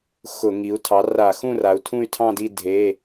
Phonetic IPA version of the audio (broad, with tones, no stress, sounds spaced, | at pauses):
x ʊ˧˩˧ ŋ i˩˧ u̯ tʰ ɑ˩˥ r a˧˩˧ x ũ˥˨ r a˩˧ u̯ tʰ ũ˥˨ y̯ tʰ ɑ̃˥˨ d i˥˨ dʱ e˩˧˩